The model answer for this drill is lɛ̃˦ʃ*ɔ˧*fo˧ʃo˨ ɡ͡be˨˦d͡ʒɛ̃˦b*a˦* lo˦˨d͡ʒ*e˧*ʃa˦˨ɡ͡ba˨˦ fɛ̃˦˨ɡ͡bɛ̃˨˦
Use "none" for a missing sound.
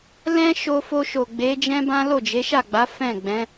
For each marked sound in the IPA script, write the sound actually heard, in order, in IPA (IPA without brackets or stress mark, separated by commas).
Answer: o˧, ã˦, e˨˦